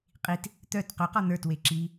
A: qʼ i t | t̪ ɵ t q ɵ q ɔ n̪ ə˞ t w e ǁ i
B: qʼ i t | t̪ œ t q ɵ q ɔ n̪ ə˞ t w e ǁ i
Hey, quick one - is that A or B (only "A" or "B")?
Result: B